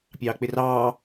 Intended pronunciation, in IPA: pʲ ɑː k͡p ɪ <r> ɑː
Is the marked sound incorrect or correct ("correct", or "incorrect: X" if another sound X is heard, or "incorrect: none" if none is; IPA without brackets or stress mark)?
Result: correct